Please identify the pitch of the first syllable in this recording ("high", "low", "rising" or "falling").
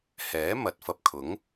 rising